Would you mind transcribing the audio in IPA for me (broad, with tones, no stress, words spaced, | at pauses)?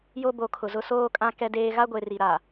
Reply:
jo˦bo˨˦kʰʊ˨ zʊ˦soː˦kʼã˦ kɛ˦deː˦ ɣa˦ɡʷe˨ri˨ ɾa˨